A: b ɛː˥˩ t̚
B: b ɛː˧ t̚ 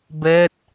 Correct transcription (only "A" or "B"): A